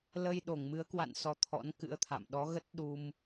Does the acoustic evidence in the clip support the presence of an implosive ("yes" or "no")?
yes